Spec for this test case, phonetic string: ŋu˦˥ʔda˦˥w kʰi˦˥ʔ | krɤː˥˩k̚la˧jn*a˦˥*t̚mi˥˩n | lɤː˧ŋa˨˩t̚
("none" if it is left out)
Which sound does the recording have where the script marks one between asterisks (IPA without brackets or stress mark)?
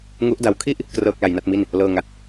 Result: a˥˩